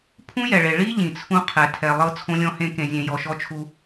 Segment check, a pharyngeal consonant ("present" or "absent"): absent